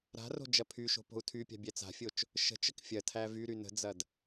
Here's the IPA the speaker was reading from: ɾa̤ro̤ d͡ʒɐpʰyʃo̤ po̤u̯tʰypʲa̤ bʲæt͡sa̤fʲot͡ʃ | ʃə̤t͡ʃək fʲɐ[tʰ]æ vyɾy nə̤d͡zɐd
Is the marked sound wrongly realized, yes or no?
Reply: no